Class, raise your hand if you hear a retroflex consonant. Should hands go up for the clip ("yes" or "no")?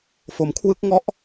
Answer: no